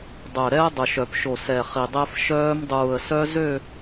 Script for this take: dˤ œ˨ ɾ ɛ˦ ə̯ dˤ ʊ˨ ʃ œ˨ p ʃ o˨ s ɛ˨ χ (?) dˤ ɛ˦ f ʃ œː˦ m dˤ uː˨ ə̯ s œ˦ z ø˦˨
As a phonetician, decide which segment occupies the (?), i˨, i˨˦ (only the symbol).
i˨